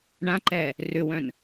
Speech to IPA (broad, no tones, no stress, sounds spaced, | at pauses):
ɳ ã ǃ ɛː | r ʏ w œ̃ n